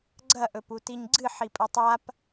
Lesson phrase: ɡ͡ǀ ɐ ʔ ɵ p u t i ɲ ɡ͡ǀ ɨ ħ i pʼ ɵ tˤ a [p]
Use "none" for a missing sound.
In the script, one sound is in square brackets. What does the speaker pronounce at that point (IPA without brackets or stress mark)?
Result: p